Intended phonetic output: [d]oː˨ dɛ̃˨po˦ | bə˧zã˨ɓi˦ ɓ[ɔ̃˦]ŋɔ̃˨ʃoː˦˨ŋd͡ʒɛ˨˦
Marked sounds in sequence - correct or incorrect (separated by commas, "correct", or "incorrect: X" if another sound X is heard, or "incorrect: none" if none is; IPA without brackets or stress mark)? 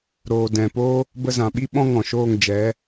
incorrect: ɾ, correct